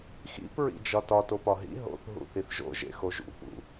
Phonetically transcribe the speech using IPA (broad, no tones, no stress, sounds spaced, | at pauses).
x ḭ p ɹ ḭ d͡ʒ ɒ t ɒ t o p ɒ ɦ ḭ ɦ o̰ θ ɦ ṵ θ i θ ʒ o̰ ʒ ḛ x o ʒ ṵ p ṵ